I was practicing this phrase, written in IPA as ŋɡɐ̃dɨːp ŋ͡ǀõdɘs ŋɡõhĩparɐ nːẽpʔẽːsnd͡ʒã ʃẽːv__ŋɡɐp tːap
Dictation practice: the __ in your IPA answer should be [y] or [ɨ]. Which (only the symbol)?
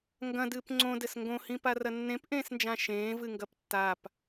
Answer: ɨ